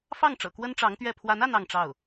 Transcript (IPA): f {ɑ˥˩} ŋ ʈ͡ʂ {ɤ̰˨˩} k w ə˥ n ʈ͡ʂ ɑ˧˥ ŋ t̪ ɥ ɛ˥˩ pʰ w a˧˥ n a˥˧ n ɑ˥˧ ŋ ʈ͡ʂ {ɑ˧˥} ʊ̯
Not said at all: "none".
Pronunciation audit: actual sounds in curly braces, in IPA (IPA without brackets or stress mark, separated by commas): ɑ˥˩, ɤ̰˨˩, ɑ˥˩